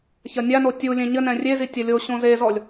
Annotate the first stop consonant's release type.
plain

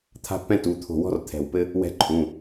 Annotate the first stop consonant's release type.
aspirated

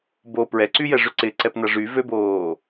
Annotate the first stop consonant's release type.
plain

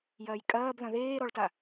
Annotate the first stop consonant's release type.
ejective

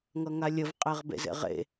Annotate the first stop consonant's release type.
ejective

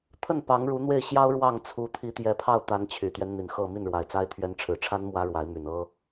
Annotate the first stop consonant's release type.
aspirated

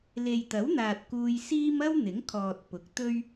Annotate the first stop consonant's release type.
plain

